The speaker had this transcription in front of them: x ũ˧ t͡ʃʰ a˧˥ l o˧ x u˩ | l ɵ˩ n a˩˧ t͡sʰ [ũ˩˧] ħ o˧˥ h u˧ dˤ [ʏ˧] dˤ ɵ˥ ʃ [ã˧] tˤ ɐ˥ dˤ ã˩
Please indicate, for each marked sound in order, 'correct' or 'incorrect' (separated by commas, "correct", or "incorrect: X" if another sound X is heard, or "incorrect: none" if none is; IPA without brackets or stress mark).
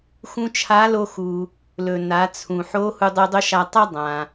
incorrect: ũ˩, incorrect: ɨ˧, incorrect: a˧